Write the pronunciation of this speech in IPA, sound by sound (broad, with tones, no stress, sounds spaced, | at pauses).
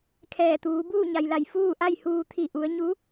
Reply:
kʰ ɛː˧˩ t̪ uː˩˧ b uː˥˨ ɲ a˩ j l a˧˩ j f uː˥˨ ʔ a˥˨ j h uː˧ t̪ʰ i˧˩ ʔ u˩˧ ə̯ ɲ u˧˥